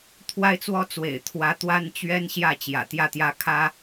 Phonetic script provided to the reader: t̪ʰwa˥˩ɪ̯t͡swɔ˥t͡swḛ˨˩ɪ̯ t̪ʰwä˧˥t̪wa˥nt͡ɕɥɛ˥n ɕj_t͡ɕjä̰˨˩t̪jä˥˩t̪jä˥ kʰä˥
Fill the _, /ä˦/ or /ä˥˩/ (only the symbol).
ä˥˩